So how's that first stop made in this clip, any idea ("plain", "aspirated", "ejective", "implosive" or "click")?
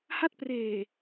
plain